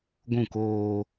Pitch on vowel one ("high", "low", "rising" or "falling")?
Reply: falling